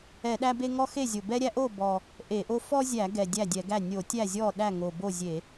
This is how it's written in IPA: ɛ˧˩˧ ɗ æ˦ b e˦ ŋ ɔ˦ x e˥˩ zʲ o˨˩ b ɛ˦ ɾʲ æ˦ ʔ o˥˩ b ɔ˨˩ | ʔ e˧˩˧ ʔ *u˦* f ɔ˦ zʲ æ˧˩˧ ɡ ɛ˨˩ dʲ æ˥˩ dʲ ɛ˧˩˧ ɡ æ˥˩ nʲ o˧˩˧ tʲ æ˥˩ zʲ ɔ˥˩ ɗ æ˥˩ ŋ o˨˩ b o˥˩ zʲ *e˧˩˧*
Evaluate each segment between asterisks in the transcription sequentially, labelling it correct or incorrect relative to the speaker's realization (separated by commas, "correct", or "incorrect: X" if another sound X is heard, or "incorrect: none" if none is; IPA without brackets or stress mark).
incorrect: o˦, correct